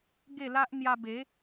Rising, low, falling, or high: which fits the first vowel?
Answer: falling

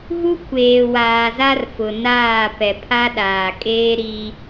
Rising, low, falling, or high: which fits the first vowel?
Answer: high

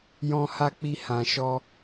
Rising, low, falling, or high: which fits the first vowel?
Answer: high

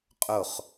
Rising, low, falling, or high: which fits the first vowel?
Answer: falling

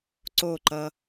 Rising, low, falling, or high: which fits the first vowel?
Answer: falling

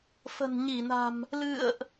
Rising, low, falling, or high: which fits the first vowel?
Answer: low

